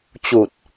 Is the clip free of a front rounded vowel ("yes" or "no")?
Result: yes